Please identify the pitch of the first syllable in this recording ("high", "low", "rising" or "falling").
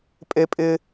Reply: high